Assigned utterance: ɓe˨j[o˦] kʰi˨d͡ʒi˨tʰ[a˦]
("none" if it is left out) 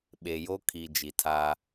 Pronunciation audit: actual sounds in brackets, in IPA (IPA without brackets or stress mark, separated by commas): o˦, a˦